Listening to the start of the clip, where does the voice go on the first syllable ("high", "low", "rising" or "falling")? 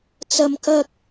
high